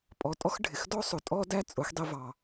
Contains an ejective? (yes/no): yes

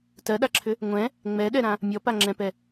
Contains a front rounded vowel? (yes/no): yes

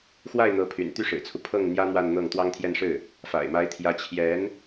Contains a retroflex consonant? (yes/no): yes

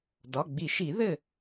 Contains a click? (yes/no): no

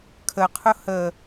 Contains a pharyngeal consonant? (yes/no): no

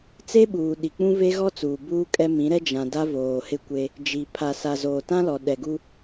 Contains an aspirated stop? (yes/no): yes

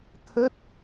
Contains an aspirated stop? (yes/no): yes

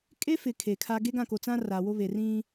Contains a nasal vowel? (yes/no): yes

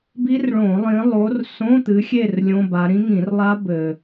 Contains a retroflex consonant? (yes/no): yes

